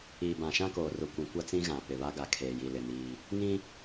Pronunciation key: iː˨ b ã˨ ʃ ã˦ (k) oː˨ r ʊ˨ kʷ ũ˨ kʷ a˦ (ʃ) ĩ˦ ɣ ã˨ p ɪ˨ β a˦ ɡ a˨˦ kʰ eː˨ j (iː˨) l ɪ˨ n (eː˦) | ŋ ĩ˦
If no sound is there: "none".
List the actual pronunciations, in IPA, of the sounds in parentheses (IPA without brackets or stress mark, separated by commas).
k, t͡s, i˨, iː˦